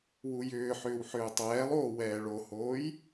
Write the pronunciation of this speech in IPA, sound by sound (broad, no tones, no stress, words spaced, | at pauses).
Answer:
wujʏːħʏːw ħʏːtˤɛːlˠoː wɛːɭohoːj